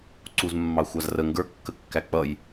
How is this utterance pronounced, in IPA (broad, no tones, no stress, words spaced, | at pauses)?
ǀuzmːɑxʷɑzrə ŋɡə˞kːəkːæ k͡pʌj